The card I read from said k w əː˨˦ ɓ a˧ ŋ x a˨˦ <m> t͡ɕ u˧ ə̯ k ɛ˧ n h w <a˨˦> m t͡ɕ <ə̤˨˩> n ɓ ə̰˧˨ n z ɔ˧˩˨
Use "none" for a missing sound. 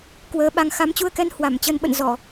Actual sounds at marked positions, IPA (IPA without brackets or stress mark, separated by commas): m, a˧˩, ə˧